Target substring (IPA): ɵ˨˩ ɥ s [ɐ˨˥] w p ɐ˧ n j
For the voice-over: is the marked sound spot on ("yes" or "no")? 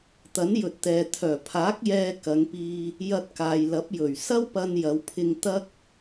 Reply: no